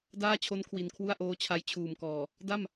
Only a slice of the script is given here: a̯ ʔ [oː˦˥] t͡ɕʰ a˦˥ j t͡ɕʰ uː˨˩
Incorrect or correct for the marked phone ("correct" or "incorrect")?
correct